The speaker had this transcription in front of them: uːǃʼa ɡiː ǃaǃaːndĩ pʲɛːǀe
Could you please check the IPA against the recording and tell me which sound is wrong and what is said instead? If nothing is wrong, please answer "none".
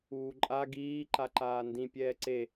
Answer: none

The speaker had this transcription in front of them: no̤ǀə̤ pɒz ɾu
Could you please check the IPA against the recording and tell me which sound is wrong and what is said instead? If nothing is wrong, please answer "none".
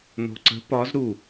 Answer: none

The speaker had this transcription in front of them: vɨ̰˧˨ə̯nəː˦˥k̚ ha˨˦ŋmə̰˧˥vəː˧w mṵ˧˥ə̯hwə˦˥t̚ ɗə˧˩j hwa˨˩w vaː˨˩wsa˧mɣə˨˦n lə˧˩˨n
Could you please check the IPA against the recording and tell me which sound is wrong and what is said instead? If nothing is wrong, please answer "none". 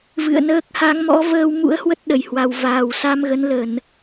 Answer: ə̰˧˥ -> ɔ̰˧˥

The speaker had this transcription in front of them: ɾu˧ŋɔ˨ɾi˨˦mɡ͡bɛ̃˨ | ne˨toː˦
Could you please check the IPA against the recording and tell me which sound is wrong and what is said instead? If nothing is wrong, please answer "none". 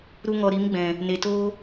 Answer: none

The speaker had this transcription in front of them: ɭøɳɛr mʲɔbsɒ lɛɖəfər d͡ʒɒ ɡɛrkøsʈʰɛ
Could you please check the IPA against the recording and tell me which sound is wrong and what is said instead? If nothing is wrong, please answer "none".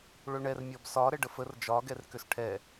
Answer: l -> ɾ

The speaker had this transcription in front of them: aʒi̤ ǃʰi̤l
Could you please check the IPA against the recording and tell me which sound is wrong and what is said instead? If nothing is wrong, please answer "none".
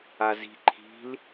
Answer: ʒ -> z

